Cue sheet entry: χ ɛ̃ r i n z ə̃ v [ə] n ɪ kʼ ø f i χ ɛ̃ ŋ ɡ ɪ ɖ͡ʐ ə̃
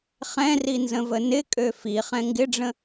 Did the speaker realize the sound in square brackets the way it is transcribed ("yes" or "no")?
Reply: yes